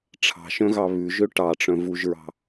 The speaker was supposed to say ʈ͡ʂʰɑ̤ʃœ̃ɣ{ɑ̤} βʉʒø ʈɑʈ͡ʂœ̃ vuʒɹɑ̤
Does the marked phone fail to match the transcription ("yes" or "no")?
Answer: yes